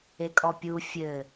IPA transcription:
e kʼ ɔ pʲ u fʲ ɘ

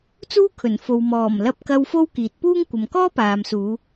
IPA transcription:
t͡s uː˥ kʰ ɵ˨˩ n f o˨ w m ɔː˨˩ m l ɐ˧ p̚ k ɐ˧ w f o˥ w k iː˨ t̚ p uː˥ ŋ kʷ ɐ˨ m k ɔː˥ p aː˨ m s uː˨˧

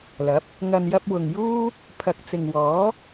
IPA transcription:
l ɐ˨˥ p̚ | ŋ ɐ˨ n j ɐ˧ p̚ w ʊ˨ ŋ j uː˥ | pʰ ɐ˨ k̚ t͡s ɪ˨ ŋ w ɔː˨˥

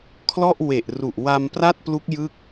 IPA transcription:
kʰ l ɔ˥˩ ʔ w e˨˩ ʔ r u˨˩ ʔ w a˧ m p r a˥˩ t̚ p l u˦˥ k̚ j ɯ˥˩ k̚

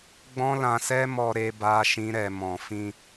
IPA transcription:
ɡ͡b ɔ̃˦ l ã˧ s ɛ˦ m ɔ˧ ɾ e˦ b a˦ ʃ ĩ˦ ɾ ɛ˧ m ɔ̃˨ f ĩ˧

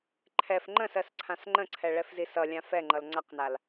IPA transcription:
ǃʰ ɛ f ŋ͡ǃ ə̃ s ɜ s ǀʰ ã s ŋ͡ǃ ə̃ ǀʰ ɛ ɭ ɛ f z i s ʌ lʲ ã f ɛ ŋ͡ǃ ʌ l ŋ͡ǀ a q n a l

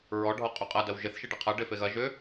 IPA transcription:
ɹ ɔ ɖʱ ɔ qʼ y qʼ ɐ d ɐ w ʒ ɪ θ ʃ i ɖ ɪ qʰ ɐ ɖ e f e ɣ ɐ ʒ ʏ

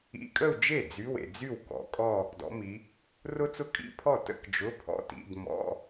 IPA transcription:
ḭ˧˥˧ kʼ ə˥˧ u̯ d͡ʒ e˥˩ d͡z y˧˥˧ w ḛ˨ d͡z y˥˩ w k ɔ̰˨˦ kʼ ɔ˥˧ | d ɔ̰˨˦ m i˨˦ | r ʊ˥ t͡s ʊ˥˧ kʼ ḭ˧˥˧ pʰ ɔ˥˩ t ə̰˥˧ k d͡ʒ ʊ˧˥˧ pʰ ɔ̰˧˥˧ t ḭ˧˥˧ d m ɔ̰˧˥˧

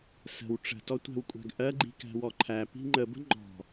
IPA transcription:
s ə̤ w ʈ͡ʂ ə̤ t ɔ tʷ æ̤ w kʷʼ æ̤ ɡ ʔ ɜ ɡ͡ǃ i̤ k æ̤ w ɔ ǃʰ æ p i̤ ŋ͡ǃ ə b ə̤ ŋ͡ǃ ɔ̤

